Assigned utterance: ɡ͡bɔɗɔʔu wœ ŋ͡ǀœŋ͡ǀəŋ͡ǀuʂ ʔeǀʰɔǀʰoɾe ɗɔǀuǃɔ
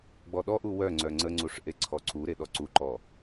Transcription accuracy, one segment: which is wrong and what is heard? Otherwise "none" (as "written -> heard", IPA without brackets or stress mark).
o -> u